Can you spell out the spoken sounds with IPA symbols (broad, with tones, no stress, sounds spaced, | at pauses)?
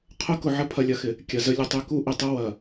qʰ ʊ˦ k ʊ˨ ʕ ə˦ pʰ ɐ˨ lʲ ɐ˨ x ɪ˨ | kʲ ɐ˨ z ə˦ lʲ ə˨ tˤ y˦ k u˦ ʔ ɪ˨ tˤ ʊ˦ w ɐ˨